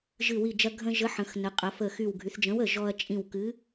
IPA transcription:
ʒɨ˧˩wi˧˩d͡ʒɐ˧ ɡʱə̃˧ ʒə˨˥ħə̃˩˧xnə˩˧qʼɐ˩˧ fə˧˩xy˧˩w ɡʱy˩˧θd͡ʒə̃˨˥wə˧˩ ʒɔ˧ɐ̯t͡ʃʼĩ˧˩w kɨ˨˥

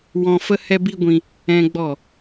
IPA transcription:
wɔ̃˦ fə˦hɛ˦bi˦ɡʷĩ˧ | ɛ̃˦ ɡ͡bɔ˦˨

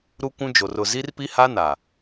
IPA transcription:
ɾu˦ kʷũ˦d͡ʒo˨r ʊ˨ zi˦rpi˦ha˦ na˨

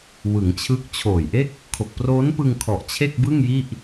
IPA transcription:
wɯ˩˦ŋt͡ɕʰɯ˦˥k̚ t͡ɕʰoː˨˩jʔe˥˩k̚ | kʰo˨˩k̚proː˦˥npɯ˧ŋ kʰɔ˨˩ʔt͡ɕʰe˥˩k̚bɯ˥˩ŋ ji˥˩ʔ

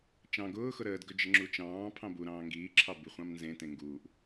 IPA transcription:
t͡ʃɑ̃ ɡʊːxʊ ɾəːdɡɵ d͡ʒəŋ͡ǁut͡ʃɑ̃ːpʰɑ̃ buɾɑ̃ː ŋɡiːǁʰɑ biχʷɑ̃mnzẽtẽ ŋɡuːʔ

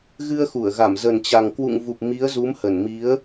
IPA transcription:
ɣɨ˧ə̯xu˧˩ə̯ɣa˧˩m zə˨˩nt͡ɕa˨˩ŋkwṵ˧˨ŋvu˨˩p̚ mi˨˦ə̯zu˨˦mhə˧˩nmi˨˦ə̯

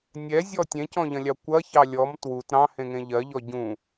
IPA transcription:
nʲɛzʲɔ tʲẽcɔ̃ʎɐ̃lʲɑ kʷɐçɑ lʲɔm twut ɾɑ̃hẽŋẽ ʎɜʎɔ ɟũ

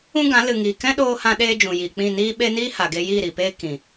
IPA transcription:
ũ˦ɡã˨˦ lɨ˨ŋiː˨ kɛ̃˦ɗoː˧hã˧ɗeː˧ d͡ʒũ˨jiː˨k͡pĩ˦˨ niː˦ɓe˦ niː˦ha˨ɡe˧ jiː˦˨ɾiː˨peː˦ kĩ˨

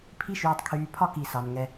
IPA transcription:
pʰi˦ʃyː˨tˤkʰyː˨ pʰɒ˦ki˨ sɑ˨nŋɛ˦

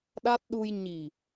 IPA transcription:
ɗa˦˥t̚ɗu˧j ɲi˨˩

